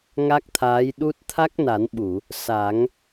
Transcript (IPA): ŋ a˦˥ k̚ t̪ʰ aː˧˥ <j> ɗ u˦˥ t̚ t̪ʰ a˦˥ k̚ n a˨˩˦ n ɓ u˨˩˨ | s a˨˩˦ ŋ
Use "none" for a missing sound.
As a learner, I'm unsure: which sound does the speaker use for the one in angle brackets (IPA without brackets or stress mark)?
j